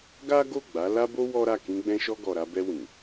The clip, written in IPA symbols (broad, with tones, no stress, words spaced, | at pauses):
ɡa˦ɡo˦˨ɡ͡ba˨˦ la˦bo˦ wɔ˦ɾa˦˨ kĩ˧ɡ͡bɛ̃˧ʃɔ˧ ɡɔ˨ɾa˧bɛ˧ wĩ˨